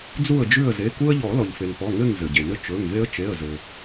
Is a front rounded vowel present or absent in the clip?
absent